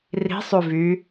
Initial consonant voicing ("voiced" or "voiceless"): voiced